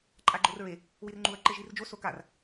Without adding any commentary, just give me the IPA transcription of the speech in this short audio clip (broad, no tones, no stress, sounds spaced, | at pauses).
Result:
ǃʼ a ɡ͡ǃ o r ɹ e | w i r ŋ͡ǃ u ɐ̯ ǃ e ʒ i r d͡ʒ o s o k a r